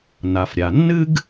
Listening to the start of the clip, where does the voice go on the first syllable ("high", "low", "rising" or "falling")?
low